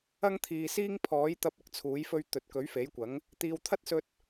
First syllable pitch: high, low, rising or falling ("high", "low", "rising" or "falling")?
high